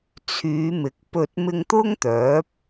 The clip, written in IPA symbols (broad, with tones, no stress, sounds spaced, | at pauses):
t͡sʰ yː˨˧ m ɪ˨˥ k̚ p ɵ˧ t̚ m ɪ˧ ŋ t̪ ʊ˥ ŋ t̪ œː˨˥ p̚